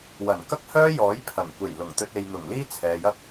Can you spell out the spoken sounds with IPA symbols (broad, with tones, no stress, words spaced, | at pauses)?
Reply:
wɐ˨˩nkɐ˥k̚hœː˥jɔː˨˥j pʰɐ˨˩ŋ kʷe˨˩j lʊ˨˩ŋt̪ɵ˧t̚ e˨jn̪ʊ˨˩ŋ liː˥t͡sʰɛː˨jɐ˥k̚